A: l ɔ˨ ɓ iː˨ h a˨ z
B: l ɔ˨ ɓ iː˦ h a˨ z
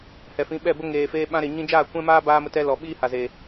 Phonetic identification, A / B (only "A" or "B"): B